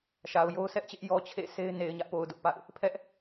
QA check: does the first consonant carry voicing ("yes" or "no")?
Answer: no